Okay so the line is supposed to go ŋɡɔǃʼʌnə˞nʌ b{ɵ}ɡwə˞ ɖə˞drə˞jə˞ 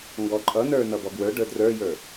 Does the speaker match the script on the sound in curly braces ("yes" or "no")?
no